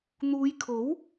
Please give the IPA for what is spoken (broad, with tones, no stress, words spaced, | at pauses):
n̪uː˨˧jkʰo˨˥w